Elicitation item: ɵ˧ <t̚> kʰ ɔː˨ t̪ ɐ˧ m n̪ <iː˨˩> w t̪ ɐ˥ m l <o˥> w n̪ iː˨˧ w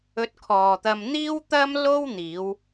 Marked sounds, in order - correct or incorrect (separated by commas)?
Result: correct, incorrect, correct